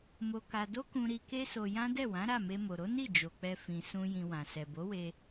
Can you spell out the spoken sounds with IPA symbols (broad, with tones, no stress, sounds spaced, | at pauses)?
m o˧ k a˧ d o˦ k ũ˧ ɾ i˧ k e˦ s o˧ j ã˦ d ɛ˦˨ w ã˨˦ ɾ a˦˨ m e˧ m o˨ ɾ o˨˦ n i˦˨ d͡ʒ o˨ k͡p ɛ˧ f ĩ˨ s ũ˧ j ĩ˧ w ã˨ s ɛ˨ b o˨˦ w e˧